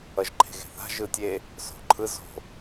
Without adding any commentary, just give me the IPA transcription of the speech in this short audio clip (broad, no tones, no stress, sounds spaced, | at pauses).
ʌ ʒ ǃʰ e̤ ɣ e̤ θ a̤ ʒ ɯ tʲ e | s o̤ ǃʰ ɯ z o̤